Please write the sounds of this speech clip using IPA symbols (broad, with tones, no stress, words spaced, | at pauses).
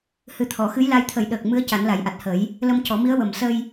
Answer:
hɨ˨˩t̪ʰɔ˨˩˨xɨ˧˥jla˧j t̪ʰə˨˩˦jɗəː˨˩k̚mɨ˧˥ə̯ ca˨˩˦nla˨˩˦jʔa˨˩t̚hə˨˩˦j | lə˧mcɔ˨˩˦mi˧˥ə̯wə˨˩m sə˧j